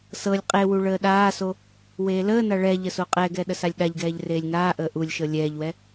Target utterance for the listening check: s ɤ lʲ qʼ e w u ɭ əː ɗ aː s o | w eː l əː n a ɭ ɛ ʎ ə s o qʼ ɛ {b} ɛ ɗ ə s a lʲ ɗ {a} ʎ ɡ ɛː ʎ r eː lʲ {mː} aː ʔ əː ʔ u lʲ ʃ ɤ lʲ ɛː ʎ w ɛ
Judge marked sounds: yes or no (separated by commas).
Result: no, yes, no